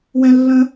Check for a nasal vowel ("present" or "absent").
present